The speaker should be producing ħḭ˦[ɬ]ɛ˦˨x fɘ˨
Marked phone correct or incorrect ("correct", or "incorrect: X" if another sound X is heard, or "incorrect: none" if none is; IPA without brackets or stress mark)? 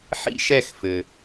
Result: incorrect: ʃ